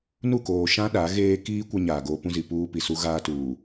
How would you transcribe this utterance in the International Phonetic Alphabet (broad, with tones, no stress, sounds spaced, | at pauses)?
n u˦˨ k oː˨ ʃ ã˦ ɗ a˨˦ ɣ eː˦ k iː˦ kʷ a˦ ɲ aː˨ ɡ oː˦ p ũ˦ z i˨ p uː˦ p i˨ s u˦ ɣ aː˦ t uː˨